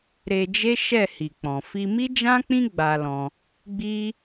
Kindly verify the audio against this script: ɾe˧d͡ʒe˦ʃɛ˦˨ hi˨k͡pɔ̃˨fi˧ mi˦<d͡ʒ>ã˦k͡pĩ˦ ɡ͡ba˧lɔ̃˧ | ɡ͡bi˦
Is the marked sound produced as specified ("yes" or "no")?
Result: yes